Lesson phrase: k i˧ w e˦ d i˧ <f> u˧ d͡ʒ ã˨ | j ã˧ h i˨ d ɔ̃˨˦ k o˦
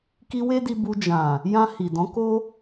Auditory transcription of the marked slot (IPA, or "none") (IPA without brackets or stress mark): b